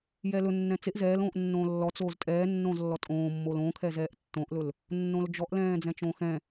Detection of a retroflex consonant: absent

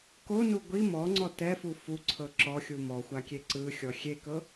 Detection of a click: present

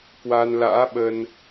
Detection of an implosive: present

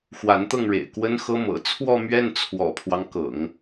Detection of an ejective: absent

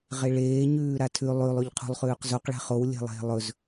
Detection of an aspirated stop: present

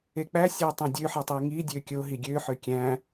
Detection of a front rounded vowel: present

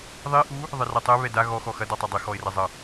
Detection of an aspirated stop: absent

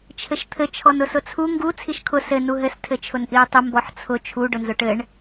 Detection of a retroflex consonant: present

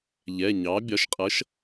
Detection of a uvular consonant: present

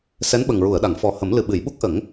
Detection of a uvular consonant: absent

